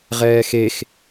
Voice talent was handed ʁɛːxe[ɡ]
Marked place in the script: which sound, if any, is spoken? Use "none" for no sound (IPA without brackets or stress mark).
x